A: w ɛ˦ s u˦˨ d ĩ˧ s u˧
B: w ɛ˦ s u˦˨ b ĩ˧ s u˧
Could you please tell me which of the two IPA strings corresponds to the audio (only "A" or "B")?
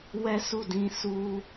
A